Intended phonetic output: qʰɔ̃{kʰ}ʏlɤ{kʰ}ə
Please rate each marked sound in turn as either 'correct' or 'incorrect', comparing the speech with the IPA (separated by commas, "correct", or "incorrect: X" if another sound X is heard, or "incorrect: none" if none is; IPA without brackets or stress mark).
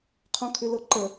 correct, incorrect: ǃ